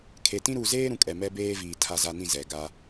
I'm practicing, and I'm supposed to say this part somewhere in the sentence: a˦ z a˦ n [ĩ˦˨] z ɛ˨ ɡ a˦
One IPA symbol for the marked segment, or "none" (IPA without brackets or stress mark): ĩ˦˨